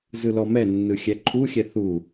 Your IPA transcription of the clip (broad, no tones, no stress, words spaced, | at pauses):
zɯlɔmɛnːɯ xʲɛǃʰuxʲɛ θu